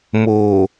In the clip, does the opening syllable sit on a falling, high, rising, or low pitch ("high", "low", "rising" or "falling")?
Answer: low